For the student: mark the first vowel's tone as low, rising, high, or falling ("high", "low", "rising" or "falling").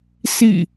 falling